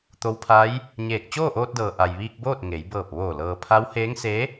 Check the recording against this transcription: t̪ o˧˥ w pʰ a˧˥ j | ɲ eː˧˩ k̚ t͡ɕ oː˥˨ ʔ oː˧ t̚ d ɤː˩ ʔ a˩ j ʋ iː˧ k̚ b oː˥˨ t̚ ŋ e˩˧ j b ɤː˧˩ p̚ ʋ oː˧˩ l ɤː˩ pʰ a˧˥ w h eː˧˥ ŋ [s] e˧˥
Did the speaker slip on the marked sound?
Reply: no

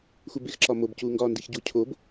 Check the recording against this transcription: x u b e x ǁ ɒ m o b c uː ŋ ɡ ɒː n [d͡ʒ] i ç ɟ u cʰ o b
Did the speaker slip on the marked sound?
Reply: yes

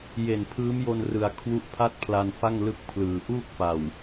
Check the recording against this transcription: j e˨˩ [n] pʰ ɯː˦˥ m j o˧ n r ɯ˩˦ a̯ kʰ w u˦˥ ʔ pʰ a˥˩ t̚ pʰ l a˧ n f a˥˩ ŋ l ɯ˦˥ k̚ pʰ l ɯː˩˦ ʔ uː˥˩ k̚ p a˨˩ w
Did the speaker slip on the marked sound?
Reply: no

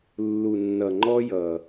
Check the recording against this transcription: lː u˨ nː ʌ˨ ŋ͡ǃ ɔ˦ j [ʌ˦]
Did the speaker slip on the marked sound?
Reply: yes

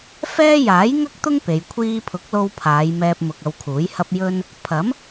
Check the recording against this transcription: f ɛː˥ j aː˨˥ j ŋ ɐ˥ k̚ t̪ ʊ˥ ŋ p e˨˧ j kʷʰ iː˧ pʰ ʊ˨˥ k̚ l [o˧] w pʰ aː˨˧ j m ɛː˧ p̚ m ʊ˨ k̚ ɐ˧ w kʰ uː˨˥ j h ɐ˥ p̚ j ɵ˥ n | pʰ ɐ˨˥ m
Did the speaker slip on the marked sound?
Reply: no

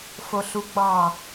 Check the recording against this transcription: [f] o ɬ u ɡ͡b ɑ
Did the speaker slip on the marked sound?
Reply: no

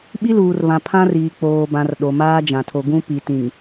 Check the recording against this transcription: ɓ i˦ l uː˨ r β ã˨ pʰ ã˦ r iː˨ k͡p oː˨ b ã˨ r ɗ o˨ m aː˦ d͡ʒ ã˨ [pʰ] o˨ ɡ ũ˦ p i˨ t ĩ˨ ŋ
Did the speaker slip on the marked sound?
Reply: yes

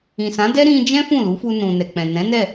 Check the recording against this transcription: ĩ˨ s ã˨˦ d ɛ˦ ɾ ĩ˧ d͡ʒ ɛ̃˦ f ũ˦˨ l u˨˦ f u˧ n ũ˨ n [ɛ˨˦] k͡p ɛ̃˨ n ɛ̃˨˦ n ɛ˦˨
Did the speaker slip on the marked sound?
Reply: yes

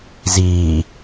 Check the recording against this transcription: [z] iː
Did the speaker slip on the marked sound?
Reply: no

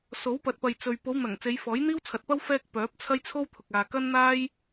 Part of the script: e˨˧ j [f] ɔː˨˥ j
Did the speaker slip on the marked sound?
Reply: no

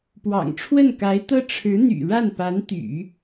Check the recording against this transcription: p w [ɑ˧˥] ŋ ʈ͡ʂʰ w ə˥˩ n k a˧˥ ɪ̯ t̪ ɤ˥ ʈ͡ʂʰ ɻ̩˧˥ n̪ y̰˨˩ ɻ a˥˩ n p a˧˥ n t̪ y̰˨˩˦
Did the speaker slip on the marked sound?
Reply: yes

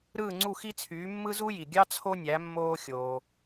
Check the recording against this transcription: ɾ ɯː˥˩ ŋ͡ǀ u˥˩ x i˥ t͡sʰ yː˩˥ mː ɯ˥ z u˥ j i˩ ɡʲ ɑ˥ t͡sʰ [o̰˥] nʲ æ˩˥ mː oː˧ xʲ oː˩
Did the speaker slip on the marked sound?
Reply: yes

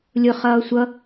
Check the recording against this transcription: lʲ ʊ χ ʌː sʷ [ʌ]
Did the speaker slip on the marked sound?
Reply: no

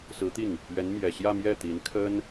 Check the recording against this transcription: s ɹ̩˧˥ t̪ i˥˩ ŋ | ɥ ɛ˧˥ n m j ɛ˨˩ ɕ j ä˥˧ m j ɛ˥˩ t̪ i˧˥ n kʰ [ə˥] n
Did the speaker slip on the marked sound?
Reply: no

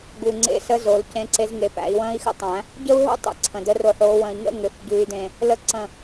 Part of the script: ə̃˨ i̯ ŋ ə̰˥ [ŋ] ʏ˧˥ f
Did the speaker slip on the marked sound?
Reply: no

